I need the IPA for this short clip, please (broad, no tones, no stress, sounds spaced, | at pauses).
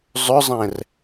zˤ ʏ zˤ ɛ̃ r